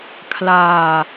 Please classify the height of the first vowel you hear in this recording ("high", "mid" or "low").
low